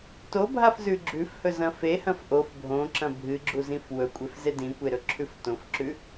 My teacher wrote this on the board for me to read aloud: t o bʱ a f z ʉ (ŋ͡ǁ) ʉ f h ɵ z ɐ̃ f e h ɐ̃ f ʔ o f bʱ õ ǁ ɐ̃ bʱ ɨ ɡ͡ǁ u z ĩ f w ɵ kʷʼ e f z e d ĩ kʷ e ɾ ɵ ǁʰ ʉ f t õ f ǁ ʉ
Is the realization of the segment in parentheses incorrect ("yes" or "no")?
yes